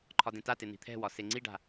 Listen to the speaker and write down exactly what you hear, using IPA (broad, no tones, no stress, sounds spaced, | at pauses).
ǃʰ ɒ d ẽ t a t e n̪ i̤ t̪ʰ ɛ̤ w ɒ s e ŋ͡ǀ i ɖ a̤